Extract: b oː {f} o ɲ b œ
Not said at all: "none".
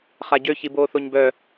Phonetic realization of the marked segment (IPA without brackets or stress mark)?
θ